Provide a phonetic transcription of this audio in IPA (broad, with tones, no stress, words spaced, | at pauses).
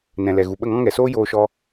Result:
nɛ̃˨lɛ˨ ɣu˨ɓə˦˨ŋɔ̃˦ ŋɛ˨soː˦ joː˧ʃɔ˧